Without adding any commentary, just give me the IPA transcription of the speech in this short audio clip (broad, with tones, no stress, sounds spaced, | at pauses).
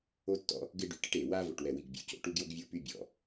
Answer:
o˦ tː ɔ̰˦ | ɡ ɪː˦ ɖ y˨˩ ʈ ɪ˦ ʈ eː˨˩ w aː˦ v o̰˨˩ ʈ w ɛ˨˩ w i˨˩ ɡ bʲ ṵ˨˩ c o̰˨˩ ʈ u˦ ɡ j o˦ ɡ vʲ ʊː˦ p y˦ bʲ ɔ̰˨˩